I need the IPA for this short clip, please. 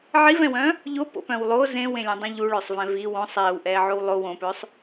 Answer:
ʕ i v ɛ̃ w œ̃ | ʎ o p o̰ p œ̃ w lˠ o z ẽ w ẽ lʲ ũ dˤ œ̃ ʎ u ɭ œ sˤ v ɛ̃ v i w õ sˤ ɛː w ʔ ɛː ʕ o w lˠ o w õ p œ sˤ

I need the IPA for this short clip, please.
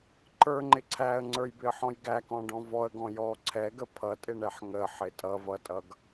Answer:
ǃ ə˞ ŋ͡ǃ ɪ ǀʰ æ ə̯ ŋ͡ǀ ə˞ j b ɪ ə̯ ħ ɔ̃ j ɡ æ k ɔ̃ ɖ ɔ̃ v ɔ ə̯ ɡ ɔ̃ j ɔ ǀʰ ɛ ɡ ə pʰ ʌ tʼ ɪ ɳ ɛ ħ ŋ ə ħ ɪ tʼ ʌ v ʌ tʼ ʌ ɡ

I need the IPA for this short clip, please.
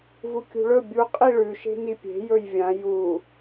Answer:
v u kʲ ṳ ɭ ɵ bʲ u qʼ i ɭ ʉ ʃ e̤ n i pʲ e̤ j ɵ j vʲ ã j u

